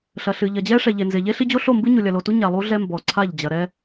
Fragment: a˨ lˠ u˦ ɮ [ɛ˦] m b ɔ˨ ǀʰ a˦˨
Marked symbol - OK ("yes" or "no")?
yes